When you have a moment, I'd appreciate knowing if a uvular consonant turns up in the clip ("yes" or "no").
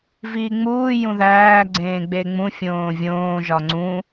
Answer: no